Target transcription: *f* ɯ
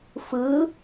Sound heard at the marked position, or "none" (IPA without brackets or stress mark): f